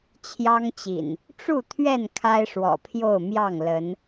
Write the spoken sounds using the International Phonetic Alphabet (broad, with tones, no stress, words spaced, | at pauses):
t͡ɕʰjɑ˦ŋt͡ɕḭ˨˩n | ʈ͡ʂu˥˨t̪ʰɥɛ˥˨n kʰa˦ɪ̯ʂwɔ̰˨˩pʰjo˥˨ʊ̯ mjɑ˥˨ŋ lə˨˦n